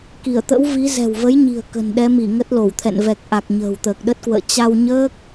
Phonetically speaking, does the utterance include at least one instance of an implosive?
yes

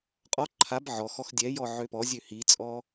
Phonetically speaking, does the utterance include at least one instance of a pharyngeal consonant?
yes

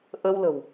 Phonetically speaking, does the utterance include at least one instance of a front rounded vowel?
no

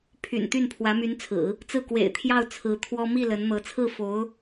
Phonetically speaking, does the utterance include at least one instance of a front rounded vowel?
yes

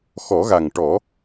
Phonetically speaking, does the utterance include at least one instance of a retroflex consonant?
yes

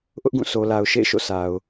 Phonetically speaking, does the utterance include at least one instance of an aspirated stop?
no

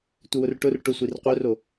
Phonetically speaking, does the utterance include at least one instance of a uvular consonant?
yes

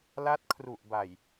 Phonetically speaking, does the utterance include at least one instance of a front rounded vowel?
no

